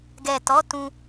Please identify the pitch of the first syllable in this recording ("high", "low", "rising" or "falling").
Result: low